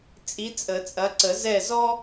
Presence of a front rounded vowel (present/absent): absent